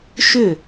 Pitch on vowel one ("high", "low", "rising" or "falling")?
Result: falling